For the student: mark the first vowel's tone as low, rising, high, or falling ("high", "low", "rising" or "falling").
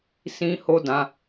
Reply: high